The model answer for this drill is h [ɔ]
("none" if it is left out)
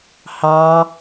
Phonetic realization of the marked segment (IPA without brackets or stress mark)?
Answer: ɑ